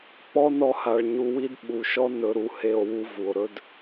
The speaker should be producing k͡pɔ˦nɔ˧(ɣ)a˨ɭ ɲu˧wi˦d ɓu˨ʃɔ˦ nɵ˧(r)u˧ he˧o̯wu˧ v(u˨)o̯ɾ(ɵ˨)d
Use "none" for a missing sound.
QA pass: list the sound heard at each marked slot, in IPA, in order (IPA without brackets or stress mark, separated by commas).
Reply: h, ɾ, u˨, ɵ˦